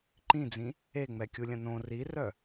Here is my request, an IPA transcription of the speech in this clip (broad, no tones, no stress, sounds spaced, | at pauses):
ǃ ĩ d͡z ĩ | e ŋ͡m ɛ kʲ u lʲ ɐ̃ n õ r i r œ